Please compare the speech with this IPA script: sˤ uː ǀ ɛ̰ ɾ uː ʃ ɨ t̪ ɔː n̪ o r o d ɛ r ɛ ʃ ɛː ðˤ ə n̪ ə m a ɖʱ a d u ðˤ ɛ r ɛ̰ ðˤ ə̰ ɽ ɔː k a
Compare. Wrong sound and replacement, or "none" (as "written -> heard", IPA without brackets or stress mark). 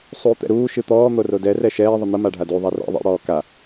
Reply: ǀ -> t̪